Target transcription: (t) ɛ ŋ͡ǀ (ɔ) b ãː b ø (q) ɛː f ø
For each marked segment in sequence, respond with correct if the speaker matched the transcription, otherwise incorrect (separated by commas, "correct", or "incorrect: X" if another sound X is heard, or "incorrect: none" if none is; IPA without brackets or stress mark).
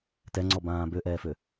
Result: correct, correct, incorrect: ʔ